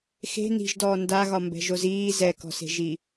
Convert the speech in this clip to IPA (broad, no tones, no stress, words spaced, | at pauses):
xe̤ ni̤ʒdɔː ndaɣɒmbɛ̤ʒoz iː zɛkɔ̤se̤ʒi